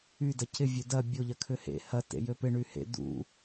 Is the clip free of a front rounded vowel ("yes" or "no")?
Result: no